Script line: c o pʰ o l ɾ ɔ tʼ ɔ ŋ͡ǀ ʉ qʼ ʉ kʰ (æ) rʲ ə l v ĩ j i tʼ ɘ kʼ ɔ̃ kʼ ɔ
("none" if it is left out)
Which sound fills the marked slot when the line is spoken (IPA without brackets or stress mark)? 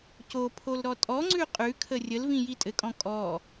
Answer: ə